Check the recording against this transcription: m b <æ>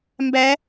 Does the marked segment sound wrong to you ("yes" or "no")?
no